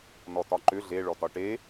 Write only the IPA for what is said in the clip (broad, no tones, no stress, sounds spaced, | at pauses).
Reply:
n ɔ t ɒ ǃ ʏ ɮ e ɭ ɔ t ɒ ʈ e